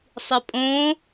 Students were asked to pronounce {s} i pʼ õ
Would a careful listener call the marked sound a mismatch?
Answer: yes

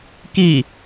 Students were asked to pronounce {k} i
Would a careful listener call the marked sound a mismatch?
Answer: no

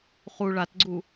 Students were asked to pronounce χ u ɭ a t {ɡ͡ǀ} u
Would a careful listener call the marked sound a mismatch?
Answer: no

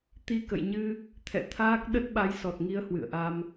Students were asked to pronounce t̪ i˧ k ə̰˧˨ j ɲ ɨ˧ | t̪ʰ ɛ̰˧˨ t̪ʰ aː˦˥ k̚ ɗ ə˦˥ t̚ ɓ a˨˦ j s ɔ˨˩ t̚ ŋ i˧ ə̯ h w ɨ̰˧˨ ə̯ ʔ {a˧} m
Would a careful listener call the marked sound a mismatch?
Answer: no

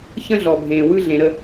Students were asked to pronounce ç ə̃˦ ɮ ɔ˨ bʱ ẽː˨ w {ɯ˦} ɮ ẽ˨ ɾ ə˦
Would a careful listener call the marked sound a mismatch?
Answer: no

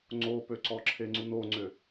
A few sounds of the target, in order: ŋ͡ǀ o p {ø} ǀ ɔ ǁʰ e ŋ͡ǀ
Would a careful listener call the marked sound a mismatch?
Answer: no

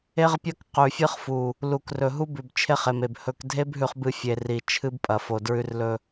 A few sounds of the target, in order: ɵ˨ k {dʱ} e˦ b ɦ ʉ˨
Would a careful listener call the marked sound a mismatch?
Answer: no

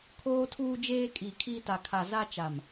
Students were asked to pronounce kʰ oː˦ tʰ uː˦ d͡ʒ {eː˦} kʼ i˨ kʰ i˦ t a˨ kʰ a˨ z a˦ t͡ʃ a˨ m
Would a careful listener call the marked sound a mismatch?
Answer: no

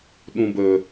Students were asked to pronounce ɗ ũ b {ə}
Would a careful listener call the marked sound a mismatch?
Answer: no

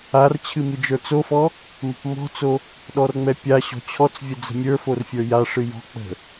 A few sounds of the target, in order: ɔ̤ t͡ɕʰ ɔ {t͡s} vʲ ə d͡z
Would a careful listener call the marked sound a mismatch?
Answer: no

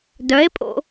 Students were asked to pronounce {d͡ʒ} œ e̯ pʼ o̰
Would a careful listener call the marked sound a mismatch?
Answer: yes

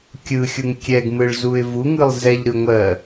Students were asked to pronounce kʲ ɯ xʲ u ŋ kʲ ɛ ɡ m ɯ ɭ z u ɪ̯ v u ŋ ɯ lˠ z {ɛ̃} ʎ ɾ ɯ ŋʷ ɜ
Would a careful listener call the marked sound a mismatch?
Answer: yes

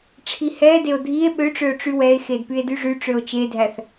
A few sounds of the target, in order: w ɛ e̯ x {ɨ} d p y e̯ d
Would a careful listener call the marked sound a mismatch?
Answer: yes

